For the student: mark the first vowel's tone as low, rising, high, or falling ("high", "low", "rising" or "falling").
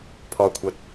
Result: low